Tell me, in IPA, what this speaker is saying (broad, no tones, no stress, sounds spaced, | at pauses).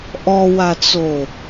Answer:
ʔ ɔ w a t͡s o